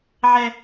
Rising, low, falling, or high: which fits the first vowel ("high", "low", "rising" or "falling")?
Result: high